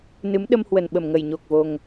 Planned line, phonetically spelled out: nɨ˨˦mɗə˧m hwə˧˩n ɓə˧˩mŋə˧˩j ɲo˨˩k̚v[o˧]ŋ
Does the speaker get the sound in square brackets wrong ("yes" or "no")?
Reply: yes